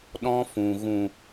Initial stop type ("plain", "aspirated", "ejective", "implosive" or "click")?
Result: implosive